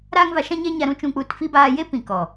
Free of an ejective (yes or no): yes